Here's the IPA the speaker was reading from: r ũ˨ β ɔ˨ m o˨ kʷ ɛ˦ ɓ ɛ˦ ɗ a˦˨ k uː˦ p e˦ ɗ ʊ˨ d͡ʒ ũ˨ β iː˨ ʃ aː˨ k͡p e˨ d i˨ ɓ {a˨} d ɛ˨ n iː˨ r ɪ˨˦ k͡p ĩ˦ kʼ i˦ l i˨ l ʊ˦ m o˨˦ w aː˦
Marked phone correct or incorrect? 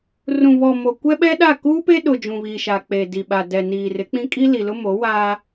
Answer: correct